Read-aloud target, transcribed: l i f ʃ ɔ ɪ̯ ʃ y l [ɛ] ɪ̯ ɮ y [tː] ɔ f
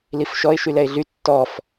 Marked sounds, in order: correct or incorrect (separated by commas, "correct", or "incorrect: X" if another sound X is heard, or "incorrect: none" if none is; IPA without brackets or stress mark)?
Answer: correct, correct